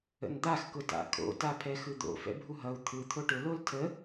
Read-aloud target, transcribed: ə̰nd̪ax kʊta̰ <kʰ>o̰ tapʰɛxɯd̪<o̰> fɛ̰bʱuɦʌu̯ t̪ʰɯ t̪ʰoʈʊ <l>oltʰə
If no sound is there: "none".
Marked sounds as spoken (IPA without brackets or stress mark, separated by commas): kʰ, o̰, l